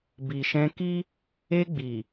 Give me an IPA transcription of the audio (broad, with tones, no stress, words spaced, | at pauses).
bi˨ʃɛ̃˧ki˦ | e˧ɡ͡bi˨